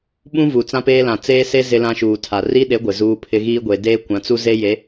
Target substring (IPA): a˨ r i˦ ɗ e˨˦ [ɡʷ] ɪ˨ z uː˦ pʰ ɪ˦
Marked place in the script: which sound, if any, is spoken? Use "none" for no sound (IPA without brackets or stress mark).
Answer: ɡʷ